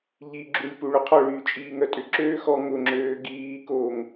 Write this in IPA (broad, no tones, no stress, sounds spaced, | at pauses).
ʎ i ɡ͡ǁ u lʲ p u ɭ ʊ qʰ ɔ ɭ yː t͡ʃʼ iː ŋ œ tʼ ʏ ǁ øː x ɔ ŋ ʊ ŋ͡ǁ øː ɡ iː k oː ŋ